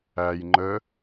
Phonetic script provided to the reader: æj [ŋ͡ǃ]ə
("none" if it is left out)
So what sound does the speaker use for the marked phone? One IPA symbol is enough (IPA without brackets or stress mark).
ŋ͡ǃ